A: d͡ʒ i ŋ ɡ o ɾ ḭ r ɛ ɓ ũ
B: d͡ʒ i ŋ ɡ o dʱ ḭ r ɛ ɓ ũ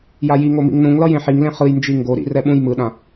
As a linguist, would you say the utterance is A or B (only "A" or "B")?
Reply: A